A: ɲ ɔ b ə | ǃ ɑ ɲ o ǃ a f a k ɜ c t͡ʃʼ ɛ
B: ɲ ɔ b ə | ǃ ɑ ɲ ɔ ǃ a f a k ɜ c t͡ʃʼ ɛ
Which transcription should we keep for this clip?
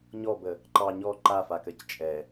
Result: B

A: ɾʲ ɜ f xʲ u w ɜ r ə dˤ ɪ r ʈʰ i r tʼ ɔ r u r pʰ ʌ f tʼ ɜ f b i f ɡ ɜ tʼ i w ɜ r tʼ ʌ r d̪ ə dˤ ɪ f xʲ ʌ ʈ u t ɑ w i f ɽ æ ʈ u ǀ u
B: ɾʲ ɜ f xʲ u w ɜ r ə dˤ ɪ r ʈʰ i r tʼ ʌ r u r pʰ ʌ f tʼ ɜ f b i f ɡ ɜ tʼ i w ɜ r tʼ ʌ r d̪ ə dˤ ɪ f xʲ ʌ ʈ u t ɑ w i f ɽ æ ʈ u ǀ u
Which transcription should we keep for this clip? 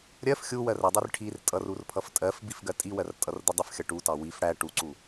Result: B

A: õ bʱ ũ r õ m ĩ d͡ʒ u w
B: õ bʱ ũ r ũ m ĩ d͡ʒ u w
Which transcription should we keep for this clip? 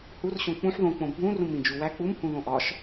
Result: B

